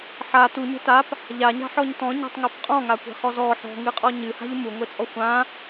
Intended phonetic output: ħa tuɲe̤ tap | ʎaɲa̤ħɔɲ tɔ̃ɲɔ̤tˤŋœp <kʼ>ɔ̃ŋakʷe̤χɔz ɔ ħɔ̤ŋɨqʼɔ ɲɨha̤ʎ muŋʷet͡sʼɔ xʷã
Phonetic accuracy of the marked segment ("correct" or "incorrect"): incorrect